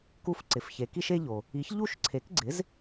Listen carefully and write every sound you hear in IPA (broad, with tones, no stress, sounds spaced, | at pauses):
k u˧ f ǀ ɪ˩ f ç e˩ k i˥ ʃ e˥ ʎ o˩ | i˩˥ ç ʎ u˥˩ ʃ ǀʰ e˩˥ k ɡ͡ǀ ɪ˩˥ z